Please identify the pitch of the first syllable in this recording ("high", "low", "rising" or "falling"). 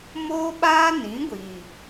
high